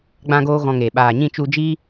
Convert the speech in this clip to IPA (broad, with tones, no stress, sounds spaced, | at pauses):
ɡ͡b ã˦ ɡ oː˦ ɣ ɔ̃˧ ŋ eː˨ ɓ aː˨ ɲ ĩ˦˨ t͡ʃ u˧ d͡ʒ i˦